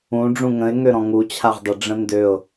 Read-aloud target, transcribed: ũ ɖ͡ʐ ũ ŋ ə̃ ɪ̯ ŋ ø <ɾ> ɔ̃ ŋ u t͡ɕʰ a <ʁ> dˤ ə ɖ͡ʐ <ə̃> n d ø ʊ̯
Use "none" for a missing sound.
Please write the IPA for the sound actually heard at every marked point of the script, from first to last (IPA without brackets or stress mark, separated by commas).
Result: ɾ, ʁ, ə̃